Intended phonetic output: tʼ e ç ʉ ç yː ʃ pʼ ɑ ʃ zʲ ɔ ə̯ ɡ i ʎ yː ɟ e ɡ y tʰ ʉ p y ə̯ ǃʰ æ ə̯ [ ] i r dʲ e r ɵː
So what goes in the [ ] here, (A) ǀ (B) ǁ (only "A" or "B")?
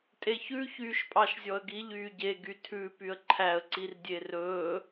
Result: A